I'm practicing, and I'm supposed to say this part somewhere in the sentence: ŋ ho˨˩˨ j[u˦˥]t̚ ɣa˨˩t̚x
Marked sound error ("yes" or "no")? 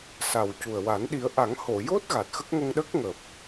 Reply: yes